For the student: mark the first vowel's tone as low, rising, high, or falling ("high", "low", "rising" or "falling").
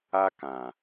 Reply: high